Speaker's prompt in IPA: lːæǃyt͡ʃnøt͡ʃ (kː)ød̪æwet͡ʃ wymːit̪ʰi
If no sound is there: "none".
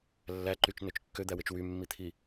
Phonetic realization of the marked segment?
kː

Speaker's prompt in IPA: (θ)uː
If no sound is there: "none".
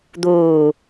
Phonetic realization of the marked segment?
d̪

